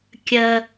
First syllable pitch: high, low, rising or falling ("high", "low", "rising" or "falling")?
high